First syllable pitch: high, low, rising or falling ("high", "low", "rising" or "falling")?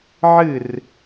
falling